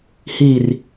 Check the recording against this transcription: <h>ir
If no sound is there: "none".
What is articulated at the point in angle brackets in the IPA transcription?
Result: h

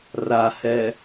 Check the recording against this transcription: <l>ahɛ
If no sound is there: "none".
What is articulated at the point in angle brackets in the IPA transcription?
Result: r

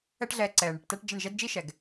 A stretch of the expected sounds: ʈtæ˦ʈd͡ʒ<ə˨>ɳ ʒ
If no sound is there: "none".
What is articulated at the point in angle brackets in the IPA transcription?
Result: ə˦˨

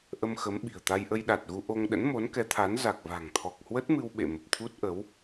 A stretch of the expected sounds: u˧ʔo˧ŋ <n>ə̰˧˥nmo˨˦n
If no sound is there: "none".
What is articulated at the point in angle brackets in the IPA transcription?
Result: ɗ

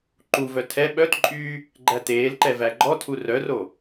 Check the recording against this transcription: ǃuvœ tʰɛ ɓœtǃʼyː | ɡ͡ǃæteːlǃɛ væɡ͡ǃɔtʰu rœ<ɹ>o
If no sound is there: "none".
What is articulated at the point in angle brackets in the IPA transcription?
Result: r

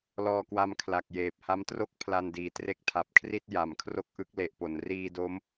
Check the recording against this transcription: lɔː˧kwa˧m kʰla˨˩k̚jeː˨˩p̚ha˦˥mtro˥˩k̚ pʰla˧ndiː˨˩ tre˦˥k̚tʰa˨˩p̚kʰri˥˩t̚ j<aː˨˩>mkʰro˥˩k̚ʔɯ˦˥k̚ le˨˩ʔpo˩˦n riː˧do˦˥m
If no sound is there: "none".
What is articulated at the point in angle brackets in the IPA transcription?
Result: a˨˩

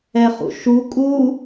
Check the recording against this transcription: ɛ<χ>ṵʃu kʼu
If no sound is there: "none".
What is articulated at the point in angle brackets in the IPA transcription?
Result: χ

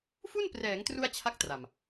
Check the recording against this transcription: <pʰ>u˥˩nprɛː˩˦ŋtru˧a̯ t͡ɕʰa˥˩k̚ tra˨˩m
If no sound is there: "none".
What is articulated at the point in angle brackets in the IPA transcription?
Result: f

